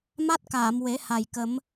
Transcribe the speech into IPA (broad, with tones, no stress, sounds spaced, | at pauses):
m a˦˥ t̚ k aː˨˩˨ m w e˨˩˦ h a˨˩ j k ə˨˩˦ m